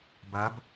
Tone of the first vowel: rising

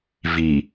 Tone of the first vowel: low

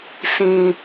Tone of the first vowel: low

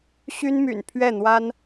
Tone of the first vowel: high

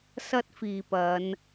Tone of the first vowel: high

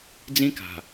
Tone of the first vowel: high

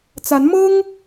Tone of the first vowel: rising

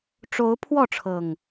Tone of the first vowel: rising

